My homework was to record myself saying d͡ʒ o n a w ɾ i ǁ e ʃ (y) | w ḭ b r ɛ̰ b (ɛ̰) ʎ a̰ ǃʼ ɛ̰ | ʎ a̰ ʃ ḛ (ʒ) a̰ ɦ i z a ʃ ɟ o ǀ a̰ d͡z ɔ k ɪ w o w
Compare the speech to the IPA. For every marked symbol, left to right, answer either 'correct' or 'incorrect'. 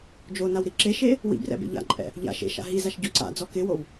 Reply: incorrect: e, incorrect: ḛ, incorrect: ʃ

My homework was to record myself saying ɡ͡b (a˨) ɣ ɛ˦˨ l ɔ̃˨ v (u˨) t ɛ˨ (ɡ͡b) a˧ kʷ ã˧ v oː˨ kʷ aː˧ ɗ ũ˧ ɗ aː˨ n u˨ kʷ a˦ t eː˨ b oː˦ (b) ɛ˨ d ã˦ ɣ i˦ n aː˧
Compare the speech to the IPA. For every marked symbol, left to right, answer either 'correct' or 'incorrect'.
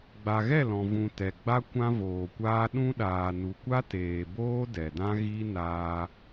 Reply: correct, incorrect: ũ˨, correct, incorrect: d

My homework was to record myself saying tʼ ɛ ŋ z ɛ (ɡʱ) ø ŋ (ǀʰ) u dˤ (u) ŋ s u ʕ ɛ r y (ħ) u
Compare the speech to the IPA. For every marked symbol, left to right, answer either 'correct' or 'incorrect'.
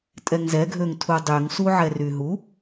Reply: correct, incorrect: tʰ, incorrect: y, incorrect: ɦ

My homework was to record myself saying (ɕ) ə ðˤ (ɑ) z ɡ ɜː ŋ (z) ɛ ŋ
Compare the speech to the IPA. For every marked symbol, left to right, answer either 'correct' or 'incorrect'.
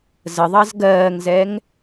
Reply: incorrect: z, correct, correct

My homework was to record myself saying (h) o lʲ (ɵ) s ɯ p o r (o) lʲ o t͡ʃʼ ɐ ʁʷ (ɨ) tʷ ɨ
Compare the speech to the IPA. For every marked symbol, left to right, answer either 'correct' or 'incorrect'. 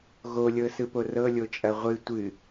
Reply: incorrect: ɣ, incorrect: ɤ, incorrect: ɤ, correct

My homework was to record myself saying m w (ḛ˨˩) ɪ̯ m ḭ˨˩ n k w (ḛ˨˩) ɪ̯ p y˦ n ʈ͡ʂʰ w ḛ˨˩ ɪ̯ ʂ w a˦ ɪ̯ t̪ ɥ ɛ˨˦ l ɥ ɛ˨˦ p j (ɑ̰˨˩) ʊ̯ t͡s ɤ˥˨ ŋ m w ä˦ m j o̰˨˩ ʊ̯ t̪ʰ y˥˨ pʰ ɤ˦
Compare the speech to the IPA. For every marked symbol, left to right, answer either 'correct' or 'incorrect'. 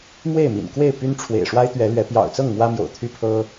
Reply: incorrect: e˥˨, incorrect: e˥˨, correct

